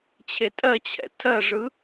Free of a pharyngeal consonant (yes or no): yes